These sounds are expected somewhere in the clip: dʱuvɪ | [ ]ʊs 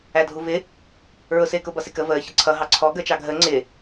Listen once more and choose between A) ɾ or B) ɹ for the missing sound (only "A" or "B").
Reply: B